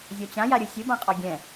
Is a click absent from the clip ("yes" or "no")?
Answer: yes